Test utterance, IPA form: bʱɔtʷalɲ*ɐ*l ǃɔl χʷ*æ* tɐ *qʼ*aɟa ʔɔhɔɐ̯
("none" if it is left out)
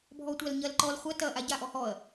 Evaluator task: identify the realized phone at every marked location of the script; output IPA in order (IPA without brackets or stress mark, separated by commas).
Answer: ɐ, ɐ, ʔ